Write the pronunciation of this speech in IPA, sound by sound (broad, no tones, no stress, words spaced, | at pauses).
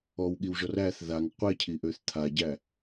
ɔwɠiwʒɔr æθ ðaŋ qʷecʰiʔøθ t̪ʰaɟæ